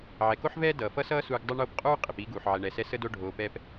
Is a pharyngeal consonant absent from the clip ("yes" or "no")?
no